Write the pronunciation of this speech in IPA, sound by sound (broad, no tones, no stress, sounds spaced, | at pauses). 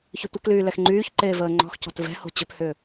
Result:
ç ʏ tʷ ə k l yː l ɛ x ŋ͡ǃ yː ç ǃ eː v əː ŋ͡ǃ ɔ̤ x c ɔ̤ t v ɛ̤ h o̤ t͡ɕ ʏ p h ʏː